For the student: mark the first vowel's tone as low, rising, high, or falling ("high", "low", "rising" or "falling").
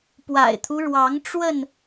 low